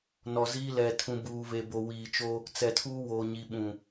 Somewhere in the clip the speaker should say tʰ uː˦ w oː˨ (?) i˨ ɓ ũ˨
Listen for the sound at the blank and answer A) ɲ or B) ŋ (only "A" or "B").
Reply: A